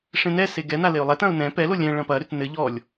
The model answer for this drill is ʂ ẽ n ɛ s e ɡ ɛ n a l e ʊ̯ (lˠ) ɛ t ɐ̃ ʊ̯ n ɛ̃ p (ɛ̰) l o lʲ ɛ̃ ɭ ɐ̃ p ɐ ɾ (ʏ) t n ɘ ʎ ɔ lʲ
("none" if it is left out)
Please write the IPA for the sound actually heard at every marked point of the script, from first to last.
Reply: lˠ, ɛ, ʏ

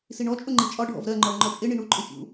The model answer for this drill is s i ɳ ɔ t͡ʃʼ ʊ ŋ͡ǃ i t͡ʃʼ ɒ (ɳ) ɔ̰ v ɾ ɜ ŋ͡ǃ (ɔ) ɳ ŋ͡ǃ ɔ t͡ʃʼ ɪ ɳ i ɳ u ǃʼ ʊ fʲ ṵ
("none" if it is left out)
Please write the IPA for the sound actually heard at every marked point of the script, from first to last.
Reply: ɖʱ, ɔ

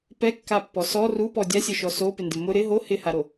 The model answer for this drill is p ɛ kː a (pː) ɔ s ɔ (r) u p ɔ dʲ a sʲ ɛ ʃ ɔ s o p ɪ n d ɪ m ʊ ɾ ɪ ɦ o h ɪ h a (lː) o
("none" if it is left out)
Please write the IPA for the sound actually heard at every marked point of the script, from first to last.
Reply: pː, r, ɾ

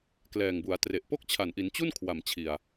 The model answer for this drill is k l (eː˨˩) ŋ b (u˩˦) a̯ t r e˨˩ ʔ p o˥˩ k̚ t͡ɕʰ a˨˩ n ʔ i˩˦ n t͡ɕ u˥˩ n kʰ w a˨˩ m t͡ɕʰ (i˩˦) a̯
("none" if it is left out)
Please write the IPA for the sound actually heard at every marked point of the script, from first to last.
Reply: ɛː˨˩, u˩˦, i˨˩

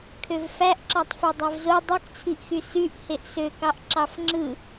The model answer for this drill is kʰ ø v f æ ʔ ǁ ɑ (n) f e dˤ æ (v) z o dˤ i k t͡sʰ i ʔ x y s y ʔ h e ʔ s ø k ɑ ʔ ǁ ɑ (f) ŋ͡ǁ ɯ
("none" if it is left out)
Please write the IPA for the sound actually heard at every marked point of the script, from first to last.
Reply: tˤ, v, f

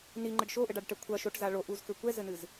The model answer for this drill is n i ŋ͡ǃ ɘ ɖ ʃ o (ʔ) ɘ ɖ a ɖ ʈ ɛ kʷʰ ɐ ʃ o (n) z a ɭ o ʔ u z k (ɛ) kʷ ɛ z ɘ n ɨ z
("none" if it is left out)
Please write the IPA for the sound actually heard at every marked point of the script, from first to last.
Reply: ʔ, ʈ, ɘ

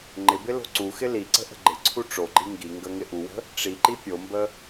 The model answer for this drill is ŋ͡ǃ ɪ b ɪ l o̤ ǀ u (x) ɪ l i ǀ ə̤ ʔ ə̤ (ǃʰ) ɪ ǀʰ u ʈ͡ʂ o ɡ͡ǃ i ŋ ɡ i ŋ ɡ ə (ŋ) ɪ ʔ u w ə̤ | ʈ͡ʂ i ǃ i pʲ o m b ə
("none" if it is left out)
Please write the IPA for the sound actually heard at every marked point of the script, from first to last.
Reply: x, ɡ͡ǃ, ŋ

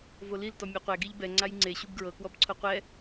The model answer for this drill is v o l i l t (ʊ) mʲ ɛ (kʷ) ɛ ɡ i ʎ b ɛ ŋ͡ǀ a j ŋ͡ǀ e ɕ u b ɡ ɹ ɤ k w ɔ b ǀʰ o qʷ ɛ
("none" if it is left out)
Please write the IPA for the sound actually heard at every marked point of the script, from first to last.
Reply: ɔ, qʷ

